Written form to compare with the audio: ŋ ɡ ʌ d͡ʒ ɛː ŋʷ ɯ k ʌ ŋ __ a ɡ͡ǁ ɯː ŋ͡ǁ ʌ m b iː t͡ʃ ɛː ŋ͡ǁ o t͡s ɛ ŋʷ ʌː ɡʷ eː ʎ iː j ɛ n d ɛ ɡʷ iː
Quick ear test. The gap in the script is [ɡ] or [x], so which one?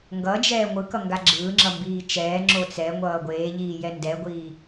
ɡ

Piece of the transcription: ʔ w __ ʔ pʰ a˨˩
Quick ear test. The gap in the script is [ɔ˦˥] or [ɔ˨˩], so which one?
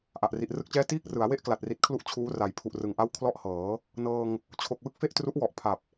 ɔ˨˩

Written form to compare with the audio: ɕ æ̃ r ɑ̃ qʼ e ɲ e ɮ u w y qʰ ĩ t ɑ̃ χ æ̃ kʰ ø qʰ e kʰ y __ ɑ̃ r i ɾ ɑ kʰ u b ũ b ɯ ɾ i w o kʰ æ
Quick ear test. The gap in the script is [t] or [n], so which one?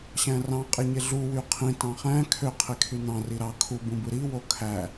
n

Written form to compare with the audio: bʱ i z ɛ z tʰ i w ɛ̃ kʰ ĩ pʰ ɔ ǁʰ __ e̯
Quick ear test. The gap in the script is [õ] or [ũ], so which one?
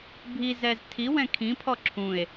ũ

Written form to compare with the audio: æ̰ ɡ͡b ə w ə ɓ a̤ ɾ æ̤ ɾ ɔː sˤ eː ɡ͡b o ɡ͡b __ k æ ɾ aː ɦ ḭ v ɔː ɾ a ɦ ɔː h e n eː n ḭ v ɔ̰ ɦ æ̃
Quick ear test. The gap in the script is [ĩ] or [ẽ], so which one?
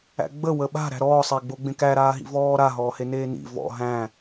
ẽ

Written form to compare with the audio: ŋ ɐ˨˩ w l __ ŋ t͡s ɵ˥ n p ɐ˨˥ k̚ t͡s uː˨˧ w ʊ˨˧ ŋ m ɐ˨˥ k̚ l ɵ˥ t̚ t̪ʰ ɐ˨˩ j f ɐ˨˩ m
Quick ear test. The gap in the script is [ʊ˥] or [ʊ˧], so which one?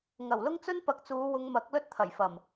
ʊ˥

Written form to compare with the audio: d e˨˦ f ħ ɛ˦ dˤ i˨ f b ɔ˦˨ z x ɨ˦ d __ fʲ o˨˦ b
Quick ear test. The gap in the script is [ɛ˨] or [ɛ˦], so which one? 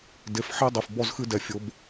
ɛ˨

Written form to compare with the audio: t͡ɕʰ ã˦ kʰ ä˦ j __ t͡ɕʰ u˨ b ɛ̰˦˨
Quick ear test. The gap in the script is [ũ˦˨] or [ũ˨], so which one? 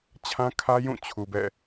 ũ˦˨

